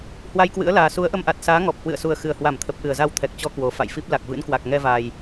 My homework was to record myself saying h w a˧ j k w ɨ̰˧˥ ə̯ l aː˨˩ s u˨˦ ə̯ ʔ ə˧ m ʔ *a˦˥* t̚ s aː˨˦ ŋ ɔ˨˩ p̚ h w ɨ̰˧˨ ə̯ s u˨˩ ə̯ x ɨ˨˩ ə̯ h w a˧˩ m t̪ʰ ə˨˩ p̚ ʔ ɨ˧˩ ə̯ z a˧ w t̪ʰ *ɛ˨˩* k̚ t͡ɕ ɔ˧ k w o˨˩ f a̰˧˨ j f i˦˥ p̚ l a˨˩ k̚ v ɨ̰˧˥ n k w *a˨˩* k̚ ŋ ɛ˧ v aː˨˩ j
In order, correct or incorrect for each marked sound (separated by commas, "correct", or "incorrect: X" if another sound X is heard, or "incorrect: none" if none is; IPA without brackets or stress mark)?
incorrect: a˨˩, correct, correct